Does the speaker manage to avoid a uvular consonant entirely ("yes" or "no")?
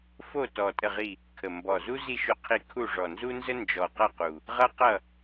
no